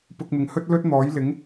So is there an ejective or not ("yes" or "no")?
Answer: no